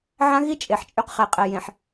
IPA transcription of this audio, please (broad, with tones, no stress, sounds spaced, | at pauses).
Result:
ʕ ã˦ ɣ i˦ t͡ʃʼ e˨ ħ t͡ʃʼ y˦ q χ ɛ˨ qʼ ɛ˨ j ẽ˨ ħ